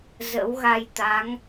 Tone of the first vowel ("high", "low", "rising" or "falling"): rising